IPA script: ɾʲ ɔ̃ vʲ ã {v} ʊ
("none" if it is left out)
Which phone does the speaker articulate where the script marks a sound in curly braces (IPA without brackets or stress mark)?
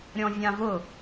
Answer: v